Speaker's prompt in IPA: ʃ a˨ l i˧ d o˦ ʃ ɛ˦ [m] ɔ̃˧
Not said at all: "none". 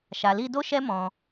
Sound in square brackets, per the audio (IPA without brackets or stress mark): m